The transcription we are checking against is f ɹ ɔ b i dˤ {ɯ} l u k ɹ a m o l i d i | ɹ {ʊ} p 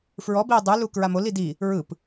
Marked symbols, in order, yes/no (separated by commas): yes, no